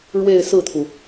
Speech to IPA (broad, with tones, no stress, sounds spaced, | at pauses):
ɻ w e˥˧ ɪ̯ s ɹ̩˥˩ t̪ʰ u˩